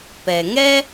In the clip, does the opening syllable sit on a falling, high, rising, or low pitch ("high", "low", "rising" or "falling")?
low